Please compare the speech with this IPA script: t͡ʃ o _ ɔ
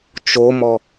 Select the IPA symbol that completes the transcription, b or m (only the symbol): m